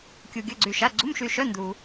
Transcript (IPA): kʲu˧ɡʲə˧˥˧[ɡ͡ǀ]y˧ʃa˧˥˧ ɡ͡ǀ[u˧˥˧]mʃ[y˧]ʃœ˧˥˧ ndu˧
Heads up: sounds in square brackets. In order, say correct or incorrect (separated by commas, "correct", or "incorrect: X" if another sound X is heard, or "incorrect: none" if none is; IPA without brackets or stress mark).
correct, correct, correct